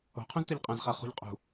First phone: o̤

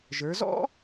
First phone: ʒ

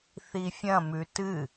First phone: θ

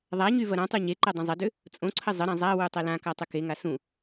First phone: ðˤ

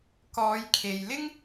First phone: k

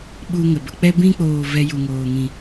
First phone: ɓ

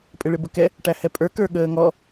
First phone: pʼ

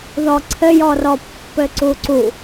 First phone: ð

